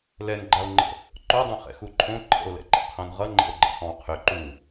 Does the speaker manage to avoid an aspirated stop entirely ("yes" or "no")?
no